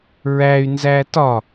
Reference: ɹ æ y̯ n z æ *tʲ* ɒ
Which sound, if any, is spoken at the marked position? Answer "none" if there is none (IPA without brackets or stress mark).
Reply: t